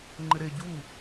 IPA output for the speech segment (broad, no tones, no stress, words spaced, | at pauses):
ŋ͡ǃɪɾe ɟu